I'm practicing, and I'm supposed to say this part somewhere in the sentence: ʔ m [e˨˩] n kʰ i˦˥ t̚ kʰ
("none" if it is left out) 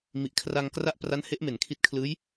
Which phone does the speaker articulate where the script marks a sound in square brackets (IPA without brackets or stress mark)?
e˨˩